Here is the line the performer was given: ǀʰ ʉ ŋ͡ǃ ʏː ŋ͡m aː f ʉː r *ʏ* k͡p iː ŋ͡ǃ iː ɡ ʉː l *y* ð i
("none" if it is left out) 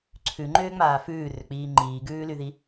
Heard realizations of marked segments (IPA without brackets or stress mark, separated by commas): ʏ, y